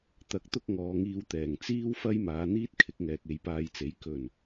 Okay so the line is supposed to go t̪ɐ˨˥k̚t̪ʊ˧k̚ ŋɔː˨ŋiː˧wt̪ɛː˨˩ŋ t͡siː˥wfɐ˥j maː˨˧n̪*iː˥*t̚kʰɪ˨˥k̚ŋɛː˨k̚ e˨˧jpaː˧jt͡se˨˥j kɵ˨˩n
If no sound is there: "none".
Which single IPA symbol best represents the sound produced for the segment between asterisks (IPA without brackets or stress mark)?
iː˥